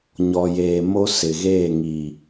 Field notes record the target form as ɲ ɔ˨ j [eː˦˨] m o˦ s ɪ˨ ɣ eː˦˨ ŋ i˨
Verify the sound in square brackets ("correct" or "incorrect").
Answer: incorrect